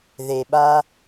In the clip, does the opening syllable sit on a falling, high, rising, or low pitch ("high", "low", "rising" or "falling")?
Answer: low